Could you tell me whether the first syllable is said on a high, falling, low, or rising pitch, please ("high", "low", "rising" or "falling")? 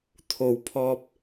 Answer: low